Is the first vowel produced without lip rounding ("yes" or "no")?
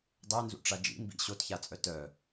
yes